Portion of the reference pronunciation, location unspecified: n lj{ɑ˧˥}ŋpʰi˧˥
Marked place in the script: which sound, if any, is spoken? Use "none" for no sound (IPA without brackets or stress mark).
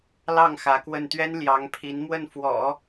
ɑ˧˥